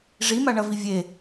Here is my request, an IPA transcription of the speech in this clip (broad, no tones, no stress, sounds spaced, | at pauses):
ʐ i m a ɳ ɐ v i vʲ e